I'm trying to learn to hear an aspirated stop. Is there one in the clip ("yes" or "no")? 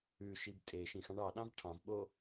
yes